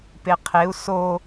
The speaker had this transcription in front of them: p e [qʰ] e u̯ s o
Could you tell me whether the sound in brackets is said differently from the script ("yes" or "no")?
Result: no